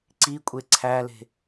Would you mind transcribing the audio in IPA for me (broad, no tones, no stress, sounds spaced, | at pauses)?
ǀ i kʷʼ e ǀʰ æ l e̤